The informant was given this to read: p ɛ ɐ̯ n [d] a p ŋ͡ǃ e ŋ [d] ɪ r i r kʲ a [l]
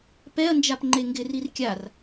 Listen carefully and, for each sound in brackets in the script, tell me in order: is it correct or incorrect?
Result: incorrect, incorrect, incorrect

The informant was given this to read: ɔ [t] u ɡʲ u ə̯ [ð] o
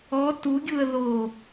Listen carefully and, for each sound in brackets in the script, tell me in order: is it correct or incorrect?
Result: correct, correct

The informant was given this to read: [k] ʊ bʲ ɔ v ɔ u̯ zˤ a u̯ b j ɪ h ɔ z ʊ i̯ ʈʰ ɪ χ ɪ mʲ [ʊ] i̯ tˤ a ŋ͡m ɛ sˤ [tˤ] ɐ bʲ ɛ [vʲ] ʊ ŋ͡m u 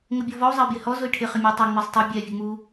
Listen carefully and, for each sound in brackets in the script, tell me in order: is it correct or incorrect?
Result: incorrect, incorrect, correct, correct

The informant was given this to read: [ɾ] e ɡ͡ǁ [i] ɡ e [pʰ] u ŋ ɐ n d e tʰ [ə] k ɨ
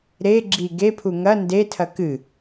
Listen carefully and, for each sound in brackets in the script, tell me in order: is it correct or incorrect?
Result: correct, correct, correct, incorrect

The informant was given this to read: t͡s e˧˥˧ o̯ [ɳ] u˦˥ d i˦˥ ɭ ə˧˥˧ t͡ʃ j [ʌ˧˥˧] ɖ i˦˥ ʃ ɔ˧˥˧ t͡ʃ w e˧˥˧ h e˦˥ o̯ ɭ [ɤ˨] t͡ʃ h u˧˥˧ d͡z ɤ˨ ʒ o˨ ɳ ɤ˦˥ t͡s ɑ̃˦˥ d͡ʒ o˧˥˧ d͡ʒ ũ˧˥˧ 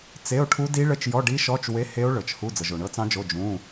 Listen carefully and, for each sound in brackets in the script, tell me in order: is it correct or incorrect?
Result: incorrect, incorrect, correct

